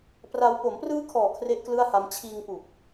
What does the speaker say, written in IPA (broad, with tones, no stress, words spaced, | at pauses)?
pra˦˥w po˩˦mprɯː˦˥kʰɔː˨˩ kʰre˥˩ʔklɯ˥˩a̯ha˦˥m t͡ɕʰiː˧ŋ pu˨˩k̚